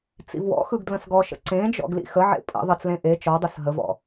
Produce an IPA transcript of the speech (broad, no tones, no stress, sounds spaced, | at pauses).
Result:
t͡s ḭ v w ɔ̰ x ɯ ɡ d l ə̃ s ɡ ɔ ʃ ə̰ ǀ ẽ d͡ʒ ɔ̰ ɡ l ḭ x ə ʕ ḛ pʼ ə̰ ðˤ ə t͡s l ẽ ʔ e t͡ʃ ɔ dˤ ɯ s ɦ ə v ɔ̰